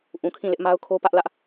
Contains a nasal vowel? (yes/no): yes